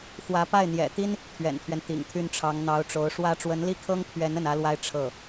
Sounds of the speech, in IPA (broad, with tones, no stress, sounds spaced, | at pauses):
x w ä˧˥ p a˥˩ ɪ̯ n̪ j ɛ̰˨˩ t̪ i˥ n | t̪ʰ ɥ ɛ̰˨˩ n t̪ʰ ɥ ɛ˦ n t̪ ḭ˨˩ ŋ t̪ʰ y˥˩ n ʈ͡ʂʰ ɑ˧˥ ŋ n̪ ɑ˧˥ ʊ̯ ʈ͡ʂ o˧˥ ʊ̯ ʂ w ä˥ ʈ͡ʂ w ə˧˥ n l i˥˩ kʰ ɤ˥ ŋ pʰ ɥ ɛ˧˥ n ə˥˩ n ä˥ l w a˥ ɪ̯ ʈ͡ʂʰ ɤ˥˩